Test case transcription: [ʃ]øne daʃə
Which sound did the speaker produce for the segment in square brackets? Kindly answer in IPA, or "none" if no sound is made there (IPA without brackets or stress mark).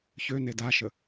ç